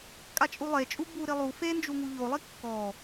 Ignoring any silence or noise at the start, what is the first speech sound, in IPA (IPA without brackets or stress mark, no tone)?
kʼ